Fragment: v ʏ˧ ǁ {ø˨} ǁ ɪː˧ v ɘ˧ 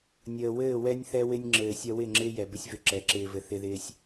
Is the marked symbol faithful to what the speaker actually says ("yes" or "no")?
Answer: no